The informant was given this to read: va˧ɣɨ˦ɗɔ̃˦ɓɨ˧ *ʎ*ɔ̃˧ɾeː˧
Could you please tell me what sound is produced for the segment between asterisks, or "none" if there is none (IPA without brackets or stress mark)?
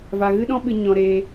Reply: ɲ